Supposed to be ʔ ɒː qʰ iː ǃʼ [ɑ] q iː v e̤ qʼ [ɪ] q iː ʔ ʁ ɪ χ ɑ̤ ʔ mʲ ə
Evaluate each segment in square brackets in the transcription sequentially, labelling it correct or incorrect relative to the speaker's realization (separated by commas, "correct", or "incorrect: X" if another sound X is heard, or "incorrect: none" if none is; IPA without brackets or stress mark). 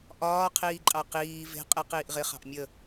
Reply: correct, correct